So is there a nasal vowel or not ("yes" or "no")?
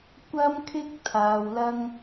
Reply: no